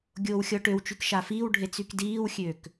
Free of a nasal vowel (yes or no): yes